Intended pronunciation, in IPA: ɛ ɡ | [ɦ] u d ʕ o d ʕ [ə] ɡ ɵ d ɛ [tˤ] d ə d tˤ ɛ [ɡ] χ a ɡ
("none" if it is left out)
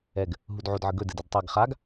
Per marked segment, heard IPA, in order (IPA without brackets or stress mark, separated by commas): ɦ, ə, none, ɡ